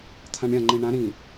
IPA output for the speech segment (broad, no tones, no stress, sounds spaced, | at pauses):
t̪ʰ ã ɳ ɾʲ ã ŋ͡ǃ ĩ ɳ ã ɾ ĩ